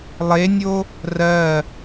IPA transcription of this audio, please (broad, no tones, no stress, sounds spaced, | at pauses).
lˠ e nʲ o | r ɜ